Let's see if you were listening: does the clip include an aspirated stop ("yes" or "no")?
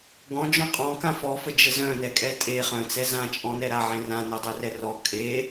no